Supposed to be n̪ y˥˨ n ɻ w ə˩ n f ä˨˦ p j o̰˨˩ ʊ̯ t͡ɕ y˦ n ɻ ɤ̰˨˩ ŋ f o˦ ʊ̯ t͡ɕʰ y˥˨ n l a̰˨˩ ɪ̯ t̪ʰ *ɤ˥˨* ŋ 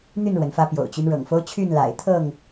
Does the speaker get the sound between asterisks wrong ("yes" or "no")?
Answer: no